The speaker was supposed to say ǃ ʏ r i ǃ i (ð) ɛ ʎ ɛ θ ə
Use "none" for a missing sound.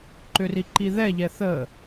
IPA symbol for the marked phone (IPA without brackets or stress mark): ð